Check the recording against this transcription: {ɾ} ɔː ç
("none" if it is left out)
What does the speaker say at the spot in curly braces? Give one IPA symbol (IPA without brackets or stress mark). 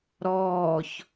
ɾ